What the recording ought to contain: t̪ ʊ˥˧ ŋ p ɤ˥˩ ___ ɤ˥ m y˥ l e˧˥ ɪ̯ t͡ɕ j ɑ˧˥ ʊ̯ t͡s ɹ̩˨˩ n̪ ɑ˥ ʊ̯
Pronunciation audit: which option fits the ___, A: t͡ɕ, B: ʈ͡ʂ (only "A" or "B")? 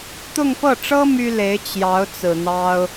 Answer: B